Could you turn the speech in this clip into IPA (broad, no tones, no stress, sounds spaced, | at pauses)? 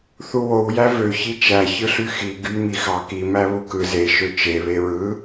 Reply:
θ u w o w j æ v ø ç i t͡ʃ æ ç ɯ ɬ y x i ɡ y m i x ɑ k i m æ β u k ɯ z e ʃ ø t͡ʃ e β e ɹ ɯ